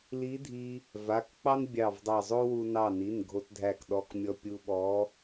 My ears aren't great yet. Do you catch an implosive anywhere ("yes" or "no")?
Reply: yes